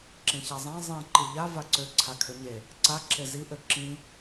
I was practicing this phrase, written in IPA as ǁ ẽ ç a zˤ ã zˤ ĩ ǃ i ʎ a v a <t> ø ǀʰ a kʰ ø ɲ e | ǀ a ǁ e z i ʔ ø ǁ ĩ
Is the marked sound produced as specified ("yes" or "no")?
no